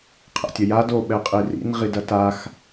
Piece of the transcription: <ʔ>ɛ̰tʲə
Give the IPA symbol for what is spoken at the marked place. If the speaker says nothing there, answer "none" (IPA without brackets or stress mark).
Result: qʰ